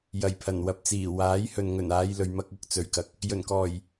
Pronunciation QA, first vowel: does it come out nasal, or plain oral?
oral